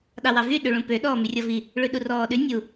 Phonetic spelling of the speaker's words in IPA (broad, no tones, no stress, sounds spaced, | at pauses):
ɗ ɑ w ɑ v y ɗ ʉ ɭ ũ p ø ɗ ɔː m y rʲ ɔ v i | ɭ ʉ ɗ u r ɔː ɗ ʉ nʲ u